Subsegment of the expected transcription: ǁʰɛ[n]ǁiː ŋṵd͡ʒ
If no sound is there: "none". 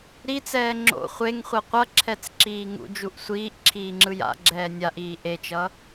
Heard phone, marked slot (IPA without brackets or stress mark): t͡s